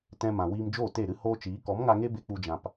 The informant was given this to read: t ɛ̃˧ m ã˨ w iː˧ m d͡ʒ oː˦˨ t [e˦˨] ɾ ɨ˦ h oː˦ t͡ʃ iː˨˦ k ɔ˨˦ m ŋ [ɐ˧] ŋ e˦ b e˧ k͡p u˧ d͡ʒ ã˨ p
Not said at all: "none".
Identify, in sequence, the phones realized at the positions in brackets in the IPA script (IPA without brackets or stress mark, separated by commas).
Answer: e˦˨, a˧